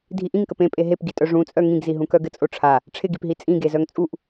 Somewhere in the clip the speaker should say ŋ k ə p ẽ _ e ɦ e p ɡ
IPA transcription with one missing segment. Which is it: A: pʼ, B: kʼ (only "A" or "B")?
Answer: A